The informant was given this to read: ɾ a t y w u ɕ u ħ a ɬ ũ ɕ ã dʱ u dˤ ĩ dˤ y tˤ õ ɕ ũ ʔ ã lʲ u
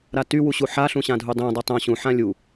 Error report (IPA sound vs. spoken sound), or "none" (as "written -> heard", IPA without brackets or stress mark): ʔ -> ħ